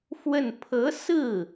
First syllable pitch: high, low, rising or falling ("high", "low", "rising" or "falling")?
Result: falling